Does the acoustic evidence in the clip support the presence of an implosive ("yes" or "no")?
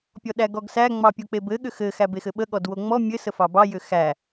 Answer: yes